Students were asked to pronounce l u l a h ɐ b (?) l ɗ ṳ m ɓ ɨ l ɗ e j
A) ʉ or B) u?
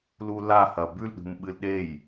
A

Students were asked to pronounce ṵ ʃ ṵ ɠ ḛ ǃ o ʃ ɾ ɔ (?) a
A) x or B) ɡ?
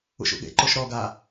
B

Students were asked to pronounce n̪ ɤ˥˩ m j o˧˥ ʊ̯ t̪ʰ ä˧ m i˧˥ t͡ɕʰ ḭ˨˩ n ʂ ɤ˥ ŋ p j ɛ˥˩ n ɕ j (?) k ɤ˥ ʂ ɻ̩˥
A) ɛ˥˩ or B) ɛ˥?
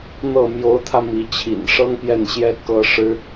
B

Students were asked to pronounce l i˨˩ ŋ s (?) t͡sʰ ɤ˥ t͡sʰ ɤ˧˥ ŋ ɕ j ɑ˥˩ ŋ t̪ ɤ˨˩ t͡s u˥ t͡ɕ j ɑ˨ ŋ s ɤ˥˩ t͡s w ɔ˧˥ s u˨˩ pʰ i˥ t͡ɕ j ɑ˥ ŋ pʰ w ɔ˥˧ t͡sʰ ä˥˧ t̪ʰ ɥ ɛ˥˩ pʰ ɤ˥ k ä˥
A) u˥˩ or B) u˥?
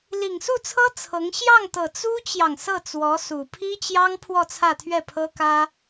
A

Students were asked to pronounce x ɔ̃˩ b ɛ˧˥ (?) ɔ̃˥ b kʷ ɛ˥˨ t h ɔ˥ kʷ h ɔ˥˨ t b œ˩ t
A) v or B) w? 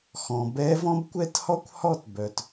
A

